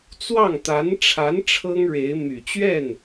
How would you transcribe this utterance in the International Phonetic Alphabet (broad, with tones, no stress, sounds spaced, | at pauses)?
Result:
t͡s w ɑ˥˩ ŋ t̪ a˧˥ n ʈ͡ʂʰ a˧˥ n ʈ͡ʂʰ ɤ˥ ŋ ɻ e˧˥ ɪ̯ m y˨˩ t͡ɕ ɥ ɛ˥˩ n